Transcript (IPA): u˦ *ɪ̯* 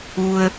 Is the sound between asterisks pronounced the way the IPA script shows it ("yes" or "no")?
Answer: no